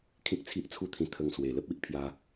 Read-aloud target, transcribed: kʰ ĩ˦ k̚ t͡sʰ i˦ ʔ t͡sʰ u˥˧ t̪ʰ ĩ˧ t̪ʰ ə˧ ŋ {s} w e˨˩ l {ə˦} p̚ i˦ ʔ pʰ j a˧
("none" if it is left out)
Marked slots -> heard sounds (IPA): s, ə˦

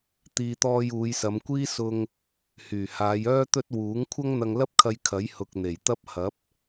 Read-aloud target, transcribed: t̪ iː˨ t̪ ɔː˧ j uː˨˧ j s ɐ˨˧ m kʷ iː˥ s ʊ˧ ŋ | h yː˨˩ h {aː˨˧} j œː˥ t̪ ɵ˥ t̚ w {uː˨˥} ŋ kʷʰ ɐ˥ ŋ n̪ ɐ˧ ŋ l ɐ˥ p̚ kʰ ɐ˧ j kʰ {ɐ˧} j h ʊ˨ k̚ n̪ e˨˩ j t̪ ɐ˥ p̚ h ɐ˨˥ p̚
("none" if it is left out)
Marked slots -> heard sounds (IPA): aː˨˧, uː˨˥, ɐ˨˥

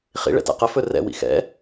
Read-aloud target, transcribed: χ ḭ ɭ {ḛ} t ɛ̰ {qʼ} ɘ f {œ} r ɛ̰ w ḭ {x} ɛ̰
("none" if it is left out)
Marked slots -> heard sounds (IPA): ɛ̰, q, ɵ, x

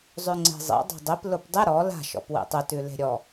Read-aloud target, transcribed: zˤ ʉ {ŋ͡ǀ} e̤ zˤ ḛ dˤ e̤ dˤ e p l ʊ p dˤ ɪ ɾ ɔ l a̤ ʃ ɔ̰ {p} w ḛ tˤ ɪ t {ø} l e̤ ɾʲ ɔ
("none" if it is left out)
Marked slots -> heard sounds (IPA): ŋ͡ǀ, p, ʉ

